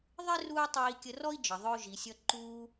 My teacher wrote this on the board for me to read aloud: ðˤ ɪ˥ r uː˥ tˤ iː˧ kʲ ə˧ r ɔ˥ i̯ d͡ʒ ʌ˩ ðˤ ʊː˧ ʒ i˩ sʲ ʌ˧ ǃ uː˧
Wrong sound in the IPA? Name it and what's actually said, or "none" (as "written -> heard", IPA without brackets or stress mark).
none